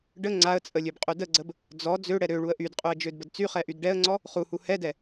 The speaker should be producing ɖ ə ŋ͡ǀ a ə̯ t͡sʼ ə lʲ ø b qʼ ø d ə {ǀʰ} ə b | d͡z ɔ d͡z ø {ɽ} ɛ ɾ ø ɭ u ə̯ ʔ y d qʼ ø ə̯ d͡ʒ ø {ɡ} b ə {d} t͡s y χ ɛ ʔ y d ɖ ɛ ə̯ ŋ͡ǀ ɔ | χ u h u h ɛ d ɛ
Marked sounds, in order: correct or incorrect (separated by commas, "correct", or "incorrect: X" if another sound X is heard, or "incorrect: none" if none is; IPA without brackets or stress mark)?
incorrect: ɡ͡ǀ, correct, incorrect: d, correct